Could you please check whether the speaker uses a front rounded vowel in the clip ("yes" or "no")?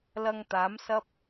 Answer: no